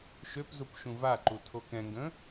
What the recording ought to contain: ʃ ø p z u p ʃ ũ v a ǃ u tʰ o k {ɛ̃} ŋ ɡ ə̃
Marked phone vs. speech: correct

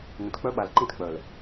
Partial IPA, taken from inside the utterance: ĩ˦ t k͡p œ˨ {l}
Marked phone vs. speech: correct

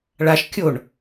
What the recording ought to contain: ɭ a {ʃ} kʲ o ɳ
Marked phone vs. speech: correct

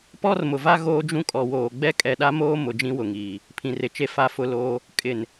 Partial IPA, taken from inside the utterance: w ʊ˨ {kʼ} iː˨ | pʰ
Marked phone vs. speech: incorrect: ŋ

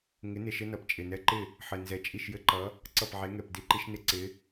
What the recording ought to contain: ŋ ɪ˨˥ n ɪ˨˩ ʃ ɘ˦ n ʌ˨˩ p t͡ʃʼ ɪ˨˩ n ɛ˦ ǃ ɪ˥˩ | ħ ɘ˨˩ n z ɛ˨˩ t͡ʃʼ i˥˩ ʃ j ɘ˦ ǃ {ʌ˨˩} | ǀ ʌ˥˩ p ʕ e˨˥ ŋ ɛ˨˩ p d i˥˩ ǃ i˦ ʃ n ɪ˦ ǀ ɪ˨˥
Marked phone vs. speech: incorrect: ʌ˨˥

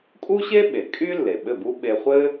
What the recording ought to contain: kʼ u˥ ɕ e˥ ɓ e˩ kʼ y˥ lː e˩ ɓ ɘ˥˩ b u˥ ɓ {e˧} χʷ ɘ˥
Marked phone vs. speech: correct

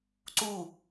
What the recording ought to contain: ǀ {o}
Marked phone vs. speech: incorrect: u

